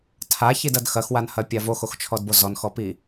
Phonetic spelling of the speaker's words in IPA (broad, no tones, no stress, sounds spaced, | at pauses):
tʰ a ç i d ɐ d x ɐ x w a n h ɐ pʲ a v o x o x t͡ʃʰ ɔ d b o z ɔ n x ɔ p i